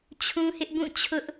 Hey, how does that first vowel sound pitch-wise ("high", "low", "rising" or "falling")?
high